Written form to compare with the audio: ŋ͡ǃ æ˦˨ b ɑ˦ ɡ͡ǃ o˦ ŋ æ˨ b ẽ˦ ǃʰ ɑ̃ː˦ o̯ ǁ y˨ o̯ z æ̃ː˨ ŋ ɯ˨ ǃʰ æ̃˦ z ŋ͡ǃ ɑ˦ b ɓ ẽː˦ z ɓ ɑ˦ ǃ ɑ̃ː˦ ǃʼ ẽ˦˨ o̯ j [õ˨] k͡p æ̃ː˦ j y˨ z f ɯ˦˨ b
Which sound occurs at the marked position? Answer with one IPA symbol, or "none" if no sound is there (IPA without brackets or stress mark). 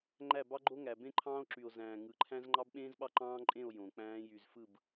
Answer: õ˨